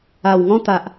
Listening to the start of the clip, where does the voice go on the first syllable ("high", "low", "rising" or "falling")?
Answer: low